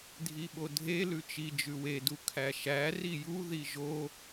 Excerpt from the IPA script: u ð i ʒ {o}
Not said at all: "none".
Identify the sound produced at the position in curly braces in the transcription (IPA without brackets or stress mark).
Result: o